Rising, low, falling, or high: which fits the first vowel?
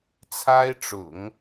high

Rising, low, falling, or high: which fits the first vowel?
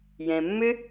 low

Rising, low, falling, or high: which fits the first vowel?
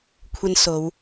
high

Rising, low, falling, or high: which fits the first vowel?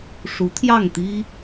rising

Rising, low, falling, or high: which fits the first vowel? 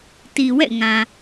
low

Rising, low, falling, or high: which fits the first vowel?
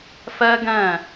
high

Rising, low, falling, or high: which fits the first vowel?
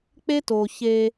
high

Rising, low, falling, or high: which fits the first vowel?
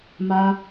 high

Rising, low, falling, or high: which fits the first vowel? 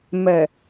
low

